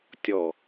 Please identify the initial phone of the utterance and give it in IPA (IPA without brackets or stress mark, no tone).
tʲ